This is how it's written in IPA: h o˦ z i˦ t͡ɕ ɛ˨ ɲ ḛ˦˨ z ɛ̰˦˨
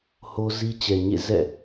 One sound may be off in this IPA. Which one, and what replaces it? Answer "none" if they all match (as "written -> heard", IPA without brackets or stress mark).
none